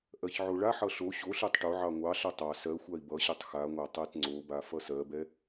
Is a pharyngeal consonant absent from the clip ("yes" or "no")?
no